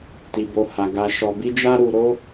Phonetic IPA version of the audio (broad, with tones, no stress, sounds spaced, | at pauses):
t i˨ b o˨ h a˨ ɡ a˧ ʃ ɔ˨ b i˧ d͡ʒ a˧ ɾ u˨ ɾ o˧